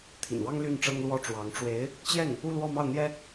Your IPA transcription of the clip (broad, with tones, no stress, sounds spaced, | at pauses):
t̪ʰ ḭ˨˩ n w ɑ˥ ŋ l y˥˩ n ʈ͡ʂ ɤ˥ ŋ l w ɔ˥˩ ʈ͡ʂ w ɑ˧˥ ŋ ʈ͡ʂ w e˧˥ ɪ̯ | t͡ɕ j ɛ˥˩ n | u˥˧ l w ɔ˥˧ m ɑ˥˩ ʊ̯ n̪ j ɛ˥